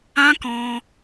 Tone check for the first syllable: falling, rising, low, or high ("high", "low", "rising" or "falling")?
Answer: high